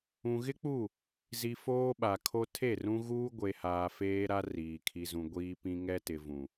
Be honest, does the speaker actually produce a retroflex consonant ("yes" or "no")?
no